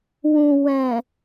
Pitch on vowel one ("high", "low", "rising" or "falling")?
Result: low